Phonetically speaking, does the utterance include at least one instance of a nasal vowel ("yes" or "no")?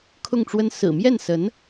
no